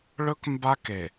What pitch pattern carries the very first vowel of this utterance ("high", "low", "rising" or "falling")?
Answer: high